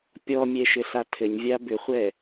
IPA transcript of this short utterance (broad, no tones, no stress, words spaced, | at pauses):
pʲɔmʲɛ ʃɘɬatʰɘɲvʲa bʏχʷɛ